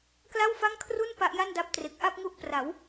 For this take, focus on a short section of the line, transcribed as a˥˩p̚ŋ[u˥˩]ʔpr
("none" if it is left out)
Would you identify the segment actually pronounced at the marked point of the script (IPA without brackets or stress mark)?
u˦˥